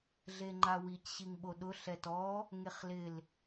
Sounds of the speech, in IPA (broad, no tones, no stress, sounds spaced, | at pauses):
ɮ e ŋ͡ǃ a w i c ɕ i ŋ ɓ o ɗ ʊ ɬ ɛ t ɔ | ŋ e χ l ɪ l